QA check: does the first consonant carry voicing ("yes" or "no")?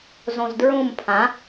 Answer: yes